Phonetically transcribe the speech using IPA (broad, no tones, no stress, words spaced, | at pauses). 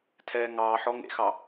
tʰɛːŋɑːħɔ ŋḛxɑ